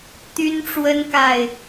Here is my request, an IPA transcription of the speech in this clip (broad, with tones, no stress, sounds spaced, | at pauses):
t̪ y˦ n ʈ͡ʂ w ə˦ n k a˥˨ ɪ̯